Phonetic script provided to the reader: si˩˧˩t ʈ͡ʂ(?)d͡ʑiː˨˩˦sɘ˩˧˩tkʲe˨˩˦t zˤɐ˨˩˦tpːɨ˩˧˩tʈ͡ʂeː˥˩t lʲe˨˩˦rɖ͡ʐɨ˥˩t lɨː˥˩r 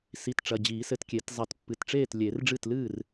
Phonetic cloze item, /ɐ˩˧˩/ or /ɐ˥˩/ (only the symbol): ɐ˩˧˩